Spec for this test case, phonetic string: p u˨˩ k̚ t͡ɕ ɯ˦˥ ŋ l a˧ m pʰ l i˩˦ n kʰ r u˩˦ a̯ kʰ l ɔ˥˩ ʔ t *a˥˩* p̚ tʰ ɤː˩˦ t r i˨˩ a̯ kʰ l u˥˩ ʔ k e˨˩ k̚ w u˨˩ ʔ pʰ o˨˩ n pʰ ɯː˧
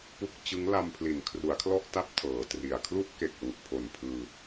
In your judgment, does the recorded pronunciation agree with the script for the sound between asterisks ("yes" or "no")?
no